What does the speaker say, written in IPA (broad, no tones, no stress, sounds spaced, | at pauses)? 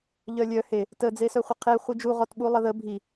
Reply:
ʎ œ lʲ œ h e | t ə d͡z e s œ χʷ ə qʰ e χʷ i d͡ʒ u ʁ ɔ t ɓ u lˠ ə ð ə bʱ i